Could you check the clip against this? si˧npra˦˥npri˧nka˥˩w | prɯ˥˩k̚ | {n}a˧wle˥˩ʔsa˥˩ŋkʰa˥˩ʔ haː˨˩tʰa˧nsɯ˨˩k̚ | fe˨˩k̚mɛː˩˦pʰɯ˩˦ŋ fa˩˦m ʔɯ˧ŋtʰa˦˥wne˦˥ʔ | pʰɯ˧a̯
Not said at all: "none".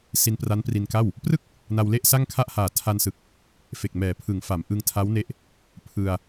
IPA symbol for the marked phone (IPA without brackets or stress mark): n